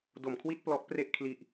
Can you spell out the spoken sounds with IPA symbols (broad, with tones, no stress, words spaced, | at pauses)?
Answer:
do˨˩mkʰwi˥˩t̚ plɔ˦˥ʔpre˥˩ʔkʰli˨˩ʔ